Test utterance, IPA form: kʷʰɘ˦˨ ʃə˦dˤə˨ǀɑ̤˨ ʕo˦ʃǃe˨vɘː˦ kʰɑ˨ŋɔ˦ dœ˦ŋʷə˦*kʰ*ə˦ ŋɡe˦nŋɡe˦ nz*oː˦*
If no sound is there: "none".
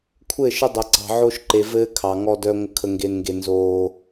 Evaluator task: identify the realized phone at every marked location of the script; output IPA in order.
kʰ, oː˦

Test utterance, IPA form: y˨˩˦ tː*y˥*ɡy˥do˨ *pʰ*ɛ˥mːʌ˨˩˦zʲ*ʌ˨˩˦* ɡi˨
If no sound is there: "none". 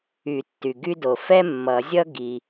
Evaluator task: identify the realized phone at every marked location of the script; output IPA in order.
y˨, f, ʌ˥

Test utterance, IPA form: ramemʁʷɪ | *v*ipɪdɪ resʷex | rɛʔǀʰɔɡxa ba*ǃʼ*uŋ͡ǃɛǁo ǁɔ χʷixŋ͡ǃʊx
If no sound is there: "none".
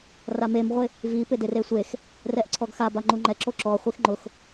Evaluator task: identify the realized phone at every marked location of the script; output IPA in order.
v, ŋ͡ǃ

